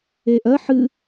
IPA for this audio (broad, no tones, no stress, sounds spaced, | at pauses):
eː ʔ ɜ ħ ɨ